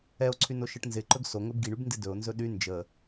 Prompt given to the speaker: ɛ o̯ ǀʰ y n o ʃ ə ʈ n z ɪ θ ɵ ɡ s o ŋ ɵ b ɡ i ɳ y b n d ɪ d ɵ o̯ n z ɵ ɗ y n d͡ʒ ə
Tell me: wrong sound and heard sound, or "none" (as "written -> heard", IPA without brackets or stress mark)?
θ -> ǃ